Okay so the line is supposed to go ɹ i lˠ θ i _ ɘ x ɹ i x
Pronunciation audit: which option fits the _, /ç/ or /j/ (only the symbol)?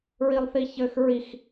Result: ç